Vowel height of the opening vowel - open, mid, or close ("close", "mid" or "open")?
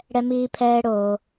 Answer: mid